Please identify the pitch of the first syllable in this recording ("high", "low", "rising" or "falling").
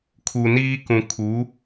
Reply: low